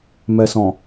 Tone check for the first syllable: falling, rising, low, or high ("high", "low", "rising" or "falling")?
low